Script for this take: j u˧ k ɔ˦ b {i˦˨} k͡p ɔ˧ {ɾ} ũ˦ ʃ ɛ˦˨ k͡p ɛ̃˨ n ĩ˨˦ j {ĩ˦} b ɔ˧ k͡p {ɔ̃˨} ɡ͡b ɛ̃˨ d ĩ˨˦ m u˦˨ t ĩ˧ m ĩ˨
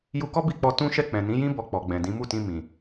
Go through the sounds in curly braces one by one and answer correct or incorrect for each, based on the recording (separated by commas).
correct, incorrect, correct, incorrect